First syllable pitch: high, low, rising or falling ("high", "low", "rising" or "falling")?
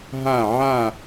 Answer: falling